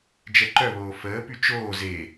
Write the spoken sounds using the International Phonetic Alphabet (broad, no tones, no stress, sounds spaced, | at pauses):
d͡ʒ ɛ ǃ œ β oː f əː p y t͡ʃ oː z e